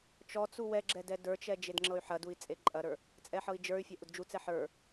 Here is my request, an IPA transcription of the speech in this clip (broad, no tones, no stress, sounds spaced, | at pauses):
t͡ʃ ɔ t͡s u w ɛ ɡ͡ǁ ɛ d ɛ d ə˞ t͡ʃ ɛ d͡ʒ e d ŋ͡ǁ ɤ y̯ ħ ɐ d u i̯ t͡sʼ e ǃʼ ɐ ɾ ə˞ | t͡sʼ ɛ ħ ɤ i̯ d͡ʒ ə˞ y̯ fʲ ɐ ʔ u d d͡ʒ u t͡s ɛ ħ ə˞